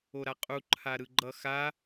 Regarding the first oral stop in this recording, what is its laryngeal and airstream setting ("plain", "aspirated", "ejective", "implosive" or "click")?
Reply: ejective